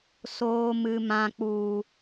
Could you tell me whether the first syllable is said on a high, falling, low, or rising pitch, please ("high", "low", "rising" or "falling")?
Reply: low